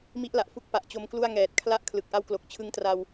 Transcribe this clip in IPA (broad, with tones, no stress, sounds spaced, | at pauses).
m i˦˥ ʔ l a˨˩ ʔ f u˦˥ k̚ p a˨˩ ʔ t͡ɕ o˦˥ m k l u˥˩ a̯ ŋ ɛː˨˩ t̚ kʰ l a˦˥ ʔ kʰ l ɯ˨˩ k̚ ʔ a˦˥ w k l o˨˩ k̚ t͡ɕʰ ɯ˦˥ ŋ t r a˧ w